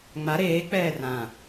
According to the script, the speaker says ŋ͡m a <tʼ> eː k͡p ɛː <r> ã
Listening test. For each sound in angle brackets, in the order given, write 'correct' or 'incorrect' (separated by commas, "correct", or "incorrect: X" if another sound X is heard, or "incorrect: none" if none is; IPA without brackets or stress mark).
incorrect: ɾ, correct